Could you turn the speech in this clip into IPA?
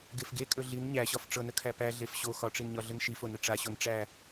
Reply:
ɡ e f ɡ e kʼ ɵ ɮ i n ɲ æ ɕ ɒ f ʈ͡ʂ ɤ n ə kʰ æ p æ ɮ e f ɕ o x ɒ ʈ͡ʂ i n ɲ ɒ ɮ ə n ʃ i f o n ə ʈ͡ʂ a ɕ o n ʈ͡ʂ æ

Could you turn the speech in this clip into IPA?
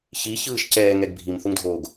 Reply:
ç i ç ɯː ʃ c ɛː ŋ ɛ ɡ bʱ i m θ u ŋ dʱ oː ɡ

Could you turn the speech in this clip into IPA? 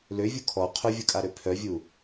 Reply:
l ø vʲ u kʰ ɔ qʰ ʊ vʲ ʊ kʼ a ɾ ø pʰ œ vʲ u

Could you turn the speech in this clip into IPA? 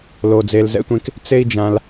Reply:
l o˧ d͡z e˧ l z ɛ̰˦ tʷ ẽ˦ k | t͡s e˦ i̯ d͡ʒ ã˧ l

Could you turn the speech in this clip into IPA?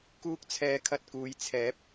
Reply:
k uː˥ k̚ t͡sʰ ɛː˧ kʰ ɐ˧ t̚ k uː˨˧ j t͡sʰ ɛː˨˥ p̚

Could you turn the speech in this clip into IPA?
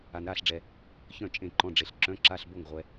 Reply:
a˧ n ɾ aː˥˨ ɬ ɖ͡ʐ ɛ˧ | ç œ̃˥˨ t͡ʃʼ ẽ˥˨ ǃ ɔ̃˧˥˧ ɖ͡ʐ e˧ ɬ ǁ œ̃˧˥˧ ǁ a˧˥˧ ɬ b o˥˨ ŋ ʁʷ ɛ˧

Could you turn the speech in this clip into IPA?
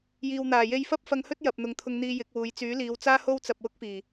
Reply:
j iː˨ w n̪ aː˨˩ j e˧ j f ɐ˥ p̚ f ɐ˧ ŋ h ɵ˥ t̚ j ɐ˨ p̚ n̪ ʊ˨˧ ŋ t̪ʰ ʊ˧ ŋ n̪ iː˧ j ɪ˨˥ k̚ w uː˨˧ j t͡s yː˨˥ l iː˨˧ w t͡s aː˥ h o˥ w t͡s ɐ˧ p̚ w ʊ˥ k̚ f iː˨˩

